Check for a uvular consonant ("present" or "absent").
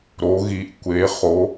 present